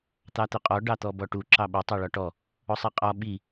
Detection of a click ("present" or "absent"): present